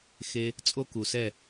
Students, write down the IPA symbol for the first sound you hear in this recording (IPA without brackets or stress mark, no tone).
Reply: x